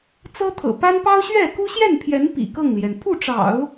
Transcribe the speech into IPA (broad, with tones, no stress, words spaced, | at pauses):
t͡sɤ˥t̪ʰɤ̰˨˩ pa˥n pɑ˥ʊ̯ɕɥɛ˥˩ ku˥ɕjɛ˥˩npʰjɛ˧˥n pḭ˨˩kɤ˥˩ŋljɛ˩n pʰu˥˩ʈ͡ʂɑ̰˨˩˦ʊ̯